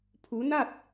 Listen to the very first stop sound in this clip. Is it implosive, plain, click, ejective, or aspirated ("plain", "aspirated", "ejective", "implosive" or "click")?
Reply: aspirated